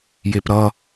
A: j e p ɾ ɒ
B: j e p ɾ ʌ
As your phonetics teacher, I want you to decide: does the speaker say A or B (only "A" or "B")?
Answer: B